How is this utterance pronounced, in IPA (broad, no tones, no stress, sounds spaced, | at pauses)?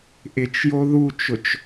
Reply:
ʔ ɪ t͡ʃ j o ð u t͡ʃ ʊ t͡ʃ